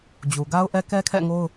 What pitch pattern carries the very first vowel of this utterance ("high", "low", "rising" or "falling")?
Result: low